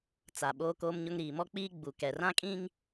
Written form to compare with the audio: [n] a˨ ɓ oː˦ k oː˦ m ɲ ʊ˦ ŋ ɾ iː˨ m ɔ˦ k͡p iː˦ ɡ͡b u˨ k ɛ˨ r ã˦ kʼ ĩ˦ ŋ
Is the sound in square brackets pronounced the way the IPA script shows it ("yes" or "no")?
no